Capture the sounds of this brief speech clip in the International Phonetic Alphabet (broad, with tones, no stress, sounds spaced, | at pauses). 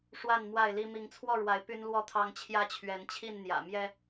ʂ w a˥˨ n m w a˥˨ ɪ̯ l i˦ m i˨˦ ŋ t͡sʰ w ɔ˥˨ ɻ w a˨˦ ɪ̯ p y˦ n l w ɔ˥˨ t̪ʰ ɑ˦ ŋ t͡ɕʰ j ä˦ t͡ɕʰ ɥ ɛ˨˦ n t͡ɕʰ i˥˨ n n̪ j ä̰˨˩ m j ɛ˦